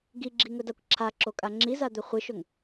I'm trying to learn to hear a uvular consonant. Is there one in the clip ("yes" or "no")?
yes